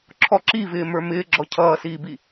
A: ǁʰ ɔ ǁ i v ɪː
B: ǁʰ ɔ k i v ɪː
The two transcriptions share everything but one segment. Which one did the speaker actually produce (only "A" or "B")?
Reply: A